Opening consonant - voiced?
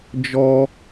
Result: yes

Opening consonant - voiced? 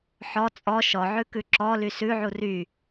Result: no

